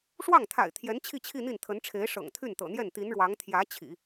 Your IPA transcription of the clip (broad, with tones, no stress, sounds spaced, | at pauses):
ʂ w ɑ˥˩ ŋ t̪ʰ a̰˨˩ ɪ̯ t̪ʰ j ɛ˧˥ n t͡ɕʰ i˥˧ t͡ɕʰ i˥˧ n̪ i˥˩ n t̪ʰ ə˧˥ n ʈ͡ʂʰ e˧˥ ɪ̯ ʂ ɤ̰˨˩ ŋ t̪ʰ y˥˩ n t̪ ɤ̰˨˩ n̪ j ɛ˥˩ n t̪ i˧˥ n ɻ w ɑ˧˥ ŋ t̪ʰ j ä˧˥ t͡ɕʰ ḭ˨˩˦